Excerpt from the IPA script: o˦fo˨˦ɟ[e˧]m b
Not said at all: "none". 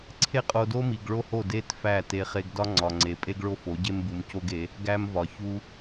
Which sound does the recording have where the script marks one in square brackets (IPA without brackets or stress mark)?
e˦